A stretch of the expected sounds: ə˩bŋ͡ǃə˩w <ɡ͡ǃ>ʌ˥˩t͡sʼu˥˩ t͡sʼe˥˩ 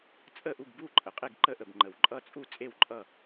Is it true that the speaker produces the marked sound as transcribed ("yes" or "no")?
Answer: no